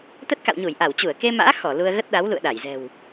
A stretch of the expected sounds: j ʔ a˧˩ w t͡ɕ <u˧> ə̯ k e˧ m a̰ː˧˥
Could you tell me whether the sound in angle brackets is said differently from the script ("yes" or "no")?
yes